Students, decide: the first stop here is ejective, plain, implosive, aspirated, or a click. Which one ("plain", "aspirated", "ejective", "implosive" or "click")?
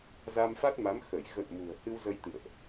plain